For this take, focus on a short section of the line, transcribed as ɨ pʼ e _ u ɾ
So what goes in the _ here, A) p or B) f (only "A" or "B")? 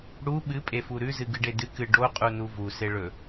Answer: B